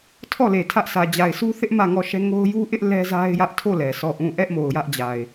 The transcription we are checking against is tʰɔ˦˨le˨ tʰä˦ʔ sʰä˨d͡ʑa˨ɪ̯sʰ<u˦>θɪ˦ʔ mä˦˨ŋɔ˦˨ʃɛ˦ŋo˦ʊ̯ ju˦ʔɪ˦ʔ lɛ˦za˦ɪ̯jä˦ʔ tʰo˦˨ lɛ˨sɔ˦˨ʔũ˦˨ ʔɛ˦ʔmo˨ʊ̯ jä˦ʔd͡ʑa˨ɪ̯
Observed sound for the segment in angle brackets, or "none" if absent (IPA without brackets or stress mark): u˦